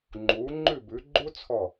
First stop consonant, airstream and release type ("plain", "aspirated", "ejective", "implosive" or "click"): click